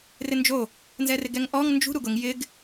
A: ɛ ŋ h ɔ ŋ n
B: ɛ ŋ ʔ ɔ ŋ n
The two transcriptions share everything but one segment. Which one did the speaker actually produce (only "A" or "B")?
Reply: B